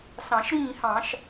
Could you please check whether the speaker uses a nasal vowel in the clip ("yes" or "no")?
yes